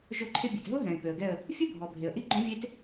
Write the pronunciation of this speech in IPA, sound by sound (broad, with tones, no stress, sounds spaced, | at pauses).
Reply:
ʒ o˦˨ ǃʰ ɪ˦˥ bʲ e˩ t ɦ ʊ˦˥ ɦ ɛ̃˩ ɪ̯ p ø˩ ə̯ ɡ ɛ˦˨ ə̯ | fʲ ʊ˦˥ bʱ ɔ˩ bʱ e˩ ə̯ ʔ i˦˥ ɡ͡ǃ õ˦˥ vʲ e˦˥ t